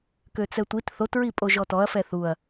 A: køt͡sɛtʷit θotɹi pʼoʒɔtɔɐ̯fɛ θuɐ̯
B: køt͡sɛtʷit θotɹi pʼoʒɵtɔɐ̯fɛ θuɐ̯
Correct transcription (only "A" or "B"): A